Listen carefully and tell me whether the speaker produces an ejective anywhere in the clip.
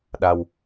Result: no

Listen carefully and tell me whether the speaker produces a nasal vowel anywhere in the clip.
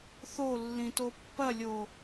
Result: yes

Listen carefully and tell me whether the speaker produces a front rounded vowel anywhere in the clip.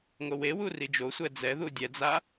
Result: no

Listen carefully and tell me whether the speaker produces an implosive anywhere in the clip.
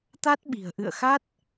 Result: yes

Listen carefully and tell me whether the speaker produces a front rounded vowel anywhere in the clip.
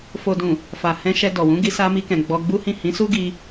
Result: no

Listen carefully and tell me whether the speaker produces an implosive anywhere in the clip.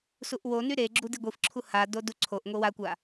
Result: no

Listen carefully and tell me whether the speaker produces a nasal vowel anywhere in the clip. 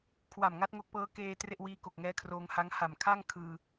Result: no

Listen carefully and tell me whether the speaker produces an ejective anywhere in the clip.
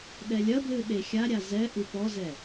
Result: no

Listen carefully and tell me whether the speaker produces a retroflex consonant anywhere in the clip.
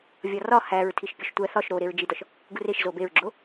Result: no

